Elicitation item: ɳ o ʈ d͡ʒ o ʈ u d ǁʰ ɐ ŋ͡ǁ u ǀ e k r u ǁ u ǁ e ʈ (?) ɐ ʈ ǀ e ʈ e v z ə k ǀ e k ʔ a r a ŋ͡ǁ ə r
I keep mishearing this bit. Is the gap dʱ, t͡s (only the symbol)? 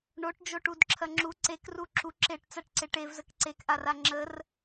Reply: t͡s